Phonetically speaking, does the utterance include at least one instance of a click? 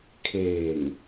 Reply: no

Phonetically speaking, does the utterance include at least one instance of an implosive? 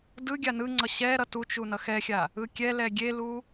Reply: no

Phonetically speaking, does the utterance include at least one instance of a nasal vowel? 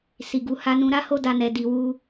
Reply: yes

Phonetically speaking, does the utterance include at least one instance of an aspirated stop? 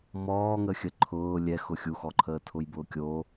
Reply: yes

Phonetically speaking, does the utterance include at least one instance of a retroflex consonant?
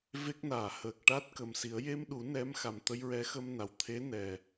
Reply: yes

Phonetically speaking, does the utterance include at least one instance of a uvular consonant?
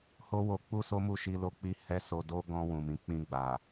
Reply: no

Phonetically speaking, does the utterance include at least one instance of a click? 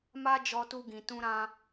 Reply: no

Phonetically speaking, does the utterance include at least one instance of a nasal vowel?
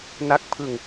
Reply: no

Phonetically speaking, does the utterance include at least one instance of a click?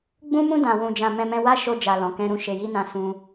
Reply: no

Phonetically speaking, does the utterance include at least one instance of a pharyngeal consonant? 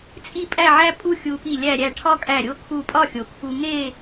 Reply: yes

